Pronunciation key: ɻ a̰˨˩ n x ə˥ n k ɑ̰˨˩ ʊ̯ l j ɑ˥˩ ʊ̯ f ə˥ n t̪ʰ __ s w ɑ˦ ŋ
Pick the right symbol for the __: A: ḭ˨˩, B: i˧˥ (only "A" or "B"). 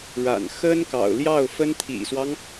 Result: A